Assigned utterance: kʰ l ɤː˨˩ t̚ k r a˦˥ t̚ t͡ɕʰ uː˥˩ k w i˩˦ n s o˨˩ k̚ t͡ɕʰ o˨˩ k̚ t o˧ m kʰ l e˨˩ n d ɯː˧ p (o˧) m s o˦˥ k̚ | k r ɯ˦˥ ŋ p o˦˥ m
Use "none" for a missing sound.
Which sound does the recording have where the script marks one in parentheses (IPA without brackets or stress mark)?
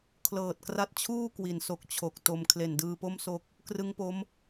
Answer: o˥˩